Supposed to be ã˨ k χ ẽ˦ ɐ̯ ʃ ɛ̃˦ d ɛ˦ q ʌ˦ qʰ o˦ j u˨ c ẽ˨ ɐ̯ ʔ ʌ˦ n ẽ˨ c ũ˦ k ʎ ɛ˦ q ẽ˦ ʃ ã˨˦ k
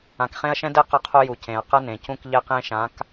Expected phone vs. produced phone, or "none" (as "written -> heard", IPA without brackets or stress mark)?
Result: ʔ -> q